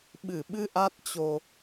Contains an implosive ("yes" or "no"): yes